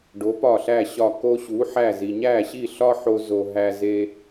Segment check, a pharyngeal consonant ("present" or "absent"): present